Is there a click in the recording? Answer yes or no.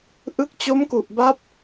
no